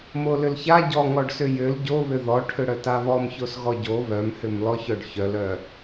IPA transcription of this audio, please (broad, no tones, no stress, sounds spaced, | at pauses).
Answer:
m o l ʏ l ç a ɟ ɔ ŋ ɔ ɖ s ʏ j ʏ l ɟ o β ʏ ð ɔ ʈʰ ʏ ɽ œ t a β ɔ m ç o s ɣ ɔ ɟ o β œ m h ʏ m l ɔ ç œ ɖ ç œ l œ